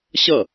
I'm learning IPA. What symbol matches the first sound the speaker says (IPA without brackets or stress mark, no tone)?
ɕ